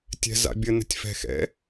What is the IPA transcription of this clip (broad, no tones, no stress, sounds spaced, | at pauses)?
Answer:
tʲ ɛ̤ z a̰ bʲ ə n ə̤ tʲ f ɛ̤ x ɛ̰